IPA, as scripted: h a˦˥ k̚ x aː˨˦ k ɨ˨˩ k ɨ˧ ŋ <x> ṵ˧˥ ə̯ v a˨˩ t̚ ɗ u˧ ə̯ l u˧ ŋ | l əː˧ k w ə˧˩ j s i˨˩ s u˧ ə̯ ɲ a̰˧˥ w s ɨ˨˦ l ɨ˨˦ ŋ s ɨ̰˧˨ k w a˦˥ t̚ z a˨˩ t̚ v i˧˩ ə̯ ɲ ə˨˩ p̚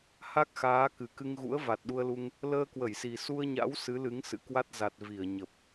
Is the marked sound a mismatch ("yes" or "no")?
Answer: yes